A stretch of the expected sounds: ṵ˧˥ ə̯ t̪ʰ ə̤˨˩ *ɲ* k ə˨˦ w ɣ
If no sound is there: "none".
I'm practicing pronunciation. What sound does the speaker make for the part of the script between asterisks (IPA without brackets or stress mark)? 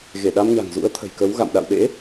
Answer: j